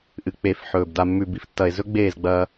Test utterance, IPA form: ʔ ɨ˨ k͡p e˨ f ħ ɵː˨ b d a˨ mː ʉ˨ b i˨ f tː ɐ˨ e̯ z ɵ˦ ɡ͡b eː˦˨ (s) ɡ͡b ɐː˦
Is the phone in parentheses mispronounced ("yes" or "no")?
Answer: yes